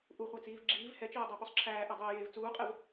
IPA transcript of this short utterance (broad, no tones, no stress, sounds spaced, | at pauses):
ʔ u χʷ æ t͡s iː v ɡ͡ǁ iː v h ɛ t͡ʃ ɛː dˤ æ p u sˤ ǁʰ æː ʔ ɛ dˤ eː j eː v t͡s uː qʼ ɛ v